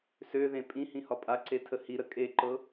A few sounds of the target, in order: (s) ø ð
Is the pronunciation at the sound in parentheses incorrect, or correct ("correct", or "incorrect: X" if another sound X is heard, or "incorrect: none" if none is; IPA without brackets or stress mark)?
correct